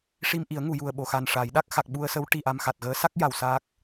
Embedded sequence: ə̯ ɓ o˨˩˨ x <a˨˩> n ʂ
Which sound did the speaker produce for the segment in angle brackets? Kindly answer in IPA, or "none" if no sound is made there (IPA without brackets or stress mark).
a˨˩